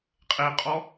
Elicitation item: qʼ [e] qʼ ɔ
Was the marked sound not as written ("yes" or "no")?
no